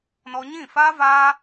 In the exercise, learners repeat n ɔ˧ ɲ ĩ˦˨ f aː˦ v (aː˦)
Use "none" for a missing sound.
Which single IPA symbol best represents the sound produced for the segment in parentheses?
aː˦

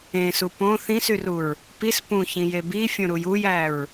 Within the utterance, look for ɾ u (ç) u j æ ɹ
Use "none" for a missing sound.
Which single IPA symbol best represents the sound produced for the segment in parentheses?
j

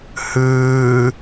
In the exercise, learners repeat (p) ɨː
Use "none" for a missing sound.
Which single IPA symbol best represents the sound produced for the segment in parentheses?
h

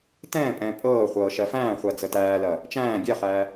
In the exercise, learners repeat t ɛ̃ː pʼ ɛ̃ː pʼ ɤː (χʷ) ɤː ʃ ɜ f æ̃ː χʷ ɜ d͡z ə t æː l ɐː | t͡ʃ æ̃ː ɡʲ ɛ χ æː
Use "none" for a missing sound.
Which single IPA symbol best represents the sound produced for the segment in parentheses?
χʷ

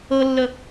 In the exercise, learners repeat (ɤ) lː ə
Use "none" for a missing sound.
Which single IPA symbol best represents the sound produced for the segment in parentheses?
ɤ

